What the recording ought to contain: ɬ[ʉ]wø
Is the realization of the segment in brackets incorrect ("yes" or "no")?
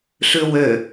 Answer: no